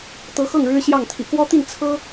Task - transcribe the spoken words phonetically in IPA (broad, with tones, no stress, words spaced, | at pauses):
t̪ɤ˧˥xɤ˥˩ŋ ɻɻ̩˥ɕjɑ˥˩ŋ t̪ʰḭ˨˩kwɔ˥t̪i˥˩n t͡sʰɤ˥